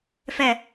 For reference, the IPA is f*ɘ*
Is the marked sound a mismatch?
yes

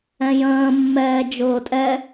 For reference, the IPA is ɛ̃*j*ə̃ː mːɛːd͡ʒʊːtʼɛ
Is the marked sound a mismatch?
no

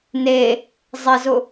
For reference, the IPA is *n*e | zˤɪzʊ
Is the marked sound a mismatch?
no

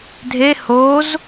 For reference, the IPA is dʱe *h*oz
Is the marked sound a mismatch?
no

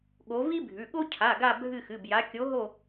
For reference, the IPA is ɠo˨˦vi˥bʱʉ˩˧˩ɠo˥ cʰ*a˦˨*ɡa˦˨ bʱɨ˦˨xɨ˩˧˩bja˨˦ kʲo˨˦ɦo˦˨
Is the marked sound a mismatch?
yes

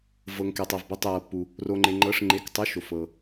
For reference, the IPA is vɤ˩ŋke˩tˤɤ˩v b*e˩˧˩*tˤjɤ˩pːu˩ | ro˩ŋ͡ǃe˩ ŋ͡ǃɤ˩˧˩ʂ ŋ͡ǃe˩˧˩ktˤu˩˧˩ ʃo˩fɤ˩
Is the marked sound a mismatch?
no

